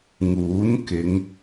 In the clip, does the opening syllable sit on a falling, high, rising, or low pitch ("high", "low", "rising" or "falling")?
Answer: rising